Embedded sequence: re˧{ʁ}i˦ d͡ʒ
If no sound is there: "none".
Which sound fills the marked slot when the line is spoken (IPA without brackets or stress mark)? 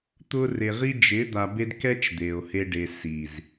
ʁ